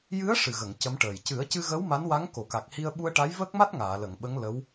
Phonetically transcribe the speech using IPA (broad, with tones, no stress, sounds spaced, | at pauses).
j ɨ˧˥ ə̯ ʂ ɨ˨˩ ɣ ə˨˩˨ ŋ c ə˧˥ m ʈ əː˨˩ j c ɨ˨˩˦ ə̯ c ɨ˧ ɣ ə˧˥ w m a˧˥ n w a˧˥ ŋ k o˨˩˨ k a˨˩ k̚ h i˧ ə̯ ɓ u˧ ə̯ ʈ a˧˥ j v əː˦˥ k̚ m a˦˥ t̚ ŋ aː˨˩˨ l ə˨˩˨ ŋ ɓ ə˧˥ ŋ l ə˧˥ w